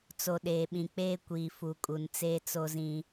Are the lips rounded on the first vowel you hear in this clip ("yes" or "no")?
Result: yes